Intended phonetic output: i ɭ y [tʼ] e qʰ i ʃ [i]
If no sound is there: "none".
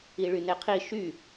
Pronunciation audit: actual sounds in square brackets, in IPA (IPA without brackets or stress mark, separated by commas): n, y